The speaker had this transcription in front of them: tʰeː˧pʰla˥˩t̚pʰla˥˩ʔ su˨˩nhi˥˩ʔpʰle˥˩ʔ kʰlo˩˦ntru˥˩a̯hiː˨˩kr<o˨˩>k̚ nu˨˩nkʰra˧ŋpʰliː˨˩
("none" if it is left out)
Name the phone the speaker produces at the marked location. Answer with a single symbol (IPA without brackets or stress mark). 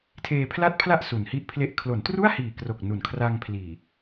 o˨˩